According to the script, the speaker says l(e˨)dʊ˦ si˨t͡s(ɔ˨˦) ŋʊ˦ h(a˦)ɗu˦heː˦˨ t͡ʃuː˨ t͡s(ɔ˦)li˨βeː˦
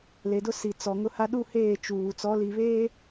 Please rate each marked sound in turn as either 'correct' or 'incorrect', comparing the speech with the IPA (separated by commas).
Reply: correct, incorrect, correct, incorrect